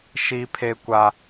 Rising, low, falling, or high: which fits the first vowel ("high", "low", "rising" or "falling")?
high